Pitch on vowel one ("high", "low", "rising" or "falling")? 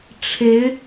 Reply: rising